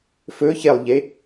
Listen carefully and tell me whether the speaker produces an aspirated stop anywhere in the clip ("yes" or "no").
no